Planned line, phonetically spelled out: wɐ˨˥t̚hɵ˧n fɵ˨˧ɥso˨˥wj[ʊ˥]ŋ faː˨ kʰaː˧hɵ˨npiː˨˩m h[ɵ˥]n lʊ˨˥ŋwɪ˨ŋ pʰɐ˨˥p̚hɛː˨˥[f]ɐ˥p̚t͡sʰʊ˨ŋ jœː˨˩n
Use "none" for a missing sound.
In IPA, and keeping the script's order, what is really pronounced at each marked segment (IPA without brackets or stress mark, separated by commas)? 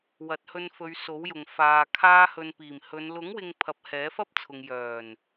ʊ˨, ɵ˨˧, f